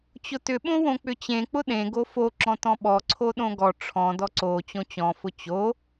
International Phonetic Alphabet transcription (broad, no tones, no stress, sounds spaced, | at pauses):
t͡ɕ ʊ t ʏ ɓ õ w õ k͡p ʏ t͡ɕ ẽ k͡p ʊ ɗ ẽ ɡ o f o ǁ ɔ̃ t ɔ̃ ɓ ɔ ǀʰ o ɗ õ ɡ ɔ ʈ͡ʂʰ ɔ̃ d ɔ ǀ o t͡ɕ õ t͡ɕ ɔ̃ f ʊ t͡ɕ o